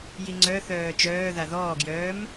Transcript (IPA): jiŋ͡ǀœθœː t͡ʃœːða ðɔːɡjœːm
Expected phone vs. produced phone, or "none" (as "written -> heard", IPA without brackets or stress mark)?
none